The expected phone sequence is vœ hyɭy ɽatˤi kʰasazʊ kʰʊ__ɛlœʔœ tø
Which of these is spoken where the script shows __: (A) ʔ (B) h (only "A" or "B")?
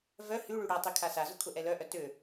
A